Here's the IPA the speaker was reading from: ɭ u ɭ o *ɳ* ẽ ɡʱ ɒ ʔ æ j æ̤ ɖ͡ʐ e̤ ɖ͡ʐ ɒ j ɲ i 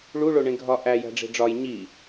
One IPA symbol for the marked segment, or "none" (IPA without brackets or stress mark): ɳ